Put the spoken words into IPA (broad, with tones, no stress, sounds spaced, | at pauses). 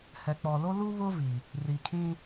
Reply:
h ɛ˨ k͡p ɔ˨ l o˦ l u˦ β ʊ˦ v i˨ | r i˨ kʰ ĩ˦